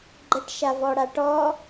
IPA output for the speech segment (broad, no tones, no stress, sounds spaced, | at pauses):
ɡ͡ǃ ə ʈ ʃ a v ɔ ɽ a ʈ ɔ